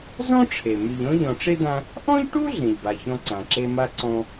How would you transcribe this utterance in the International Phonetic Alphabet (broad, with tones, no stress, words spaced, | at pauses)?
zɔ̃˥ʈ͡ʂʰe˩ my˨ʎɔ̃˥ ʎɔ̃˨ʈ͡ʂe˥d̪ã˦ | ʔɔ̃˥ʎʈu˥ ɮẽ˨ʎba˨çɔ̃˦ ǀã˨ǁe˥ ma˦ ǀɔ̃˦